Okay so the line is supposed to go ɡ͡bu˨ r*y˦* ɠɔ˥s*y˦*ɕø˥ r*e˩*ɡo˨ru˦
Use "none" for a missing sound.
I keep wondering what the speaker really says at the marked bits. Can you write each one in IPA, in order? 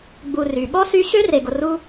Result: y˩, y˦, e˨

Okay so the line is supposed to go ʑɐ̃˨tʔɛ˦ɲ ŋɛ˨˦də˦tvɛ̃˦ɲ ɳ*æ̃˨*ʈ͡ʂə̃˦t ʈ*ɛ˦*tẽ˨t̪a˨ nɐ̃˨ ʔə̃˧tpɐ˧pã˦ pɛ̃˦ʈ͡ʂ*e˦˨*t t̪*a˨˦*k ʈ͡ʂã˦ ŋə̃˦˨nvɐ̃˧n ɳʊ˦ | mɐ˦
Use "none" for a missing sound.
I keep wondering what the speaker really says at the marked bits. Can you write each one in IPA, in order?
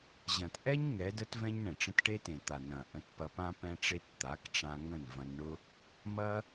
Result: ɛ̃˨, e˦, e˦, a˨˦

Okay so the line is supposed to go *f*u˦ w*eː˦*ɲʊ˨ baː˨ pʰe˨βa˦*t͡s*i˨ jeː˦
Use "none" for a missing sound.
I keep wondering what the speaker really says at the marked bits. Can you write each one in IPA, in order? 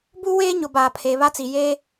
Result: b, eː˦, t͡s

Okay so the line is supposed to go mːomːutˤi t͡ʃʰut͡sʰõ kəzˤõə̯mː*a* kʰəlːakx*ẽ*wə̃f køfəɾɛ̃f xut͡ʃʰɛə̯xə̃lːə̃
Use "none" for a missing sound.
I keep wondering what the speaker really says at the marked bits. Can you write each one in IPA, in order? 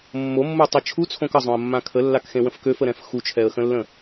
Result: ã, ẽ

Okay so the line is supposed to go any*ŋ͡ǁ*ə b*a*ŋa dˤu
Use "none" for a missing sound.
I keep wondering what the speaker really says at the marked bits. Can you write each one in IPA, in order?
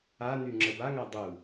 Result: ŋ͡ǁ, a

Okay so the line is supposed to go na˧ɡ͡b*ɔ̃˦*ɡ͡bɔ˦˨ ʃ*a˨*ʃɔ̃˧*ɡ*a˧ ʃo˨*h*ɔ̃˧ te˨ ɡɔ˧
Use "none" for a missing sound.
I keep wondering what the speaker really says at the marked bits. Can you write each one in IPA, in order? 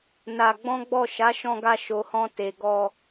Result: ɔ̃˦, a˨˦, ɡ, h

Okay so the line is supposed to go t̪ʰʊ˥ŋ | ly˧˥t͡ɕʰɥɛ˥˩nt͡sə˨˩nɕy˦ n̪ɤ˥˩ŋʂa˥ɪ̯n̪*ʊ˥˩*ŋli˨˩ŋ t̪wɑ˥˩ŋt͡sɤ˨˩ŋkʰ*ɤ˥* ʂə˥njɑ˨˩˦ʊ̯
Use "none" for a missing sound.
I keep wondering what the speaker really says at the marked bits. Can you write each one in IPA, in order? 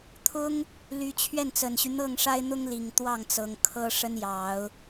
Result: ʊ˥, ɤ˥

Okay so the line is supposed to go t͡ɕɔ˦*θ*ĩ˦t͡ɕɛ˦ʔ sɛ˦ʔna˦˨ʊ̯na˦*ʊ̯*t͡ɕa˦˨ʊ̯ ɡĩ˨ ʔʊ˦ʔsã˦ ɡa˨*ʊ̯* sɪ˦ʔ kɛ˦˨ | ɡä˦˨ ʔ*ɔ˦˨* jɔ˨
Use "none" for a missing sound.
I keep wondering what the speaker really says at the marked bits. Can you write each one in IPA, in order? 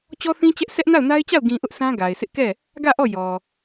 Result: θ, ɪ̯, ɪ̯, ɔ˦˨

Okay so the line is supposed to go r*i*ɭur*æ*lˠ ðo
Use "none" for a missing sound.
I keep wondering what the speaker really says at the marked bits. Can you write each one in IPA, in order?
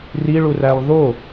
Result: i, æ

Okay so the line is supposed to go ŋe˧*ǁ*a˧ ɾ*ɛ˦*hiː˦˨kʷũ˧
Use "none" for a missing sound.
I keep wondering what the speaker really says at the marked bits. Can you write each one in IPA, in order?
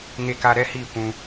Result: k, ɛ˦

